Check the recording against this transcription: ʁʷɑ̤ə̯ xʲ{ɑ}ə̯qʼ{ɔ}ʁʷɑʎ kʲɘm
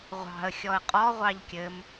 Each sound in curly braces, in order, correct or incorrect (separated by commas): incorrect, correct